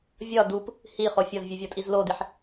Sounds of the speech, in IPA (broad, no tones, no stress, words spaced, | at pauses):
vʲɒ dup | hiχo fʲɒzvʲuvʲɒtʼiz lodiħ